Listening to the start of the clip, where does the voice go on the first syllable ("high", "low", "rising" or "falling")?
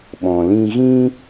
low